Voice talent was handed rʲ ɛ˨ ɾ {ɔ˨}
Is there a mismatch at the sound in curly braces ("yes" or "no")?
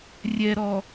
no